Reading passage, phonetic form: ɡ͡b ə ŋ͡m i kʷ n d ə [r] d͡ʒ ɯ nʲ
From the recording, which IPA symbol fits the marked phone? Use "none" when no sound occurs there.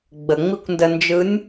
n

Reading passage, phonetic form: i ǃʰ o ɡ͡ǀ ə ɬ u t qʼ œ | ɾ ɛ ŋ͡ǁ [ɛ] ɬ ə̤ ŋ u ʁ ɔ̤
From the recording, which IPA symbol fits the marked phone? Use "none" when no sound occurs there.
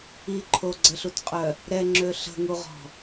ø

